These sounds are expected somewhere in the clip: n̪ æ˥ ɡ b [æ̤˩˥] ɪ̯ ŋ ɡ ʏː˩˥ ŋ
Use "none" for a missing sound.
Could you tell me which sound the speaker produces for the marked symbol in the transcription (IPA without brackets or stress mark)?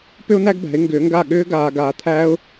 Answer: æ̤˩˥